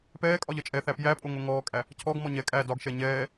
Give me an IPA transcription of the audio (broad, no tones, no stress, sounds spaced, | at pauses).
p ɛː kʼ ɒ ʎ ʌ t͡ʃʼ ɛ θ æ p j æ pʼ o ŋ o ŋ ɔː kʼ æ | cʰ ɔ ɡ m ɔ ɲ ɛ kʼ æ d ɒ ɡ ʃ ɛ ɲ ɛː